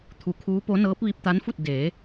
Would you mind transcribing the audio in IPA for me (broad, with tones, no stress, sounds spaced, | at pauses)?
t̪ʰ u˧˩ kʰ uː˧˥ p o˧˥ n ɤː˧˥ p̚ ʋ i˧ p̚ t̪ a˧˥ n f u˥˨ t̚ d eː˩˧